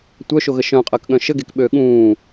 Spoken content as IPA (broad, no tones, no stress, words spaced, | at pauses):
tʷœʃoɣə ʃœ̃qʼəːkɠœ̃ ʃəɡekɓøː ɠũː